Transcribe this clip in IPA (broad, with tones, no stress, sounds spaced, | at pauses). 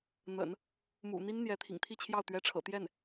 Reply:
n̪ ə̰˨˩˦ n | m ṵ˨˩ n̪ i˥ n n̪ j ɛ˧˥ t̪ʰ ḭ˨˩ ŋ t̪ʰ i˥˧ t͡ɕʰ j ɑ˥˩ ʊ̯ t̪ ɥ ɛ˥ ʈ͡ʂʰ ɤ̰˨˩ t̪ j ɛ˥˩ n